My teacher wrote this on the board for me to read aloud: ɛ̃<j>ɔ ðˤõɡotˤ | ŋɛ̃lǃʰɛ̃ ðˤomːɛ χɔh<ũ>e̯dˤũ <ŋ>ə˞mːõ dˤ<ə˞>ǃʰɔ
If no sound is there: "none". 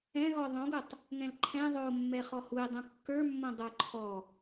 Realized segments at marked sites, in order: ɣ, u, kː, ə˞

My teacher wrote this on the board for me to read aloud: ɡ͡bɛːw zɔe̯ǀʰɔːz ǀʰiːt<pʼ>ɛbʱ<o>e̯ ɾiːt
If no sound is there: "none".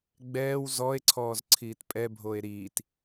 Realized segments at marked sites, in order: pʼ, o

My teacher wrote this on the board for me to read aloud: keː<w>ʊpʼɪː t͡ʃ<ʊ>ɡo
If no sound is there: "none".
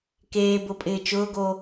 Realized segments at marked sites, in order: b, ʊː

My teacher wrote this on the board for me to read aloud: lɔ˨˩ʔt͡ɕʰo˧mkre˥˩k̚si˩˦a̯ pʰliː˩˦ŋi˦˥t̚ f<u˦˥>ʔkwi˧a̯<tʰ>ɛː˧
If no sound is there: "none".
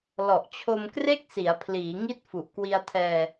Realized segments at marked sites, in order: u˨˩, tʰ

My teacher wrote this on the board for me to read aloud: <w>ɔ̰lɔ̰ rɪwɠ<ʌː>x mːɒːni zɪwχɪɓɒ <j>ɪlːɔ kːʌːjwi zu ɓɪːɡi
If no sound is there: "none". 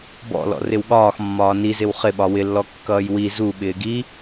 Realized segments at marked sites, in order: b, ɒː, w

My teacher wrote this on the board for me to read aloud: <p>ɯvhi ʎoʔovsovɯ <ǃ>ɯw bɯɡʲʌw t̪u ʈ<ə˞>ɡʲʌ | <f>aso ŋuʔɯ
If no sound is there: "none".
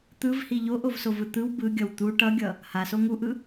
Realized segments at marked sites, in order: t̪, t̪, ʌ, h

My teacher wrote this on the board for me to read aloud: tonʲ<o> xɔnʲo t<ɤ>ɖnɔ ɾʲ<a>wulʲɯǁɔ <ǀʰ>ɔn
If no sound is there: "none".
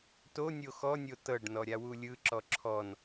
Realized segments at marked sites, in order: o, ɤ, a, ǁʰ

